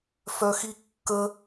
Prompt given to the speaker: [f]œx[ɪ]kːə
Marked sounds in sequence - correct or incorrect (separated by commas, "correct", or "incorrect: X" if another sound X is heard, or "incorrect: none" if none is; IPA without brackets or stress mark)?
correct, incorrect: i